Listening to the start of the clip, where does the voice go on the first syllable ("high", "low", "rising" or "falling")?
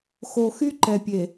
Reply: low